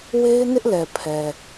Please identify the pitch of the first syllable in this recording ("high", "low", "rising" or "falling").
high